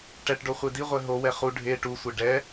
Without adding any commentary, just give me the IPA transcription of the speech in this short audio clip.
ʈ ɛ ʈ ɖ o χʷ e d i ʁʷ ɛ ɦ o w ɛ χ u ɖʱ e ʈ u sʷ e ɖ ɛ

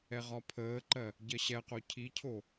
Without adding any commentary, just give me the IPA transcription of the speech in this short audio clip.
ɛ ʁ ɒ pʰ əː ǃ ɜ | ɟ ɜ ɕ ɛ q o cʰ i cʰ o

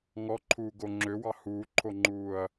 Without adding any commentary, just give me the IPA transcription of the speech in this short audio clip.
ŋ ɔ ǃʰ uː ɡ o ŋ͡ǁ ø w ɑ h uː ǃʰ o ŋ͡ǃ uː ɐ̯

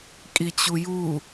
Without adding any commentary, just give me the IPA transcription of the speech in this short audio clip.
kʼ i t͡ɕ u j u

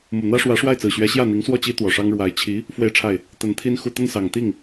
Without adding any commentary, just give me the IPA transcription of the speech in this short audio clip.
m u˨˩ n̪ ä˥ ʂ w ä˧˥ ʂ w a˥˩ ɪ̯ t͡s ɹ̩˨˩ ɕ ɥ ɛ˧˥ ɕ j ä˥˩ n̪ i˧˥ ŋ s w ɔ˥˩ t͡ɕ i˥ t̪ w ɔ˨˩ ʂ ɑ˥ ŋ ɻ w a˧˥ ɪ̯ t͡ɕʰ i˧˥ | f w e˥˧ ɪ̯ ʈ͡ʂʰ a˥˩ ɪ̯ | t̪ ə˧˥ n t̪ʰ i˥ n x u˥˧ t̪ ə˥˩ n s ɑ˨˩ ŋ t̪ i˥˩ ŋ

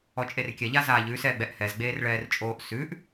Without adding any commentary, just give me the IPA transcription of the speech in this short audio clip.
ɔ t͡ʃʼ e r kʲ ɛ ʎ a z aː ʎ ʉ s ɛː ɡ͡b ɛ ʔ h ɛ z ɡ͡b eː r ɭ ɛː r t͡ʃʼ oː ʔ s ʉ ʔ

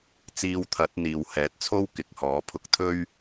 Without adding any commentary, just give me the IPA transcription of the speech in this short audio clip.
t͡s iː˧ w t̪ʰ ɐ˨˥ t̚ n̪ iː˨ w h ɛː˨˥ t̚ t͡sʰ o˥ w k ɪ˨˥ k̚ h ɔː˨˥ pʰ ʊ˧ k̚ t̪ʰ ɵ˥ ɥ

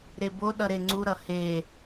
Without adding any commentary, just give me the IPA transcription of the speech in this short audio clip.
ɾ e b o ɗ ʌ ɾ e ŋ͡ǀ u ɾ ʌ h e

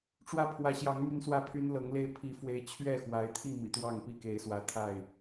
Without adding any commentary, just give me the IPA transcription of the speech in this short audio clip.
ʈ͡ʂ w ä˦ pʰ w ä˨˦ ɕ j ɑ˨˦ ŋ m y˦ n s w ä˥˨ pʰ y˦ n l ɤ˨˦ ŋ l e˦ ɪ̯ pʰ i˨˦ f w e˨˦ ɪ̯ t͡ɕʰ ɥ ɛ˥˨ x w a˨˦ ɪ̯ t̪ʰ i˥˨ m ḭ˨˩ t̪ w ɑ˥˨ ŋ p i˥˨ k e˨˦ ɪ̯ s w ä˨˦ t̪ʰ a˥˨ ɪ̯

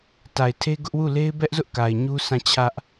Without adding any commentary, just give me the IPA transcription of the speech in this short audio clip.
t a˨ ɪ̯ tʰ e˦ ɡ ʊ˦ ʔ w u˦˨ l e˦ ɪ̯ b ɛ˦ ʔ z ʊ˦ ʔ k a˨ ɪ̯ ɲ u˦ sʰ ã˦˨ t͡ɕʰ ä˦ ʔ

